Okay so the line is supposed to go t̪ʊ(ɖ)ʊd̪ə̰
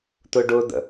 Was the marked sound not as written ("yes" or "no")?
no